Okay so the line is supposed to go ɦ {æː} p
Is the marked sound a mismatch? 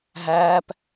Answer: no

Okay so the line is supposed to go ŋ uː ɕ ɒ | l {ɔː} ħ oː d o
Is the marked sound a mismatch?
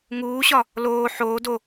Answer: yes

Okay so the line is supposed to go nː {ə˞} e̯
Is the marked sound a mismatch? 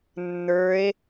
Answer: no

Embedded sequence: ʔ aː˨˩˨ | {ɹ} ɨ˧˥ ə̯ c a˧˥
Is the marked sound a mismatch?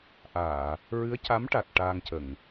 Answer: no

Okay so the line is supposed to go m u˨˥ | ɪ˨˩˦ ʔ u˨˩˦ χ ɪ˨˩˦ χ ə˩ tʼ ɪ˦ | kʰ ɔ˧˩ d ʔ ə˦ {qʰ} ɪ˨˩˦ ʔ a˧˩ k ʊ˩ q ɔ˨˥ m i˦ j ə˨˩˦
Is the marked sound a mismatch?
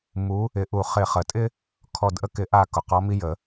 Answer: yes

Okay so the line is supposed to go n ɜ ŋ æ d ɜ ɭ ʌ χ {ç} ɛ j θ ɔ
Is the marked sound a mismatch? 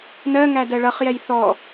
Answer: yes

